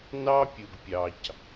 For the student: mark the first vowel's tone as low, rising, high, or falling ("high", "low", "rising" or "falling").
high